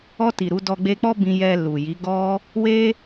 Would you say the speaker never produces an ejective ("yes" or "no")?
yes